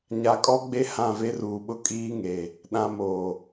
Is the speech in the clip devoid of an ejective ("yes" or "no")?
no